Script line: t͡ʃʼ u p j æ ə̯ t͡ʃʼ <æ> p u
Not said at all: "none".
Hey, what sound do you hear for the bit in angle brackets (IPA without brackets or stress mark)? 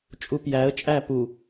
æ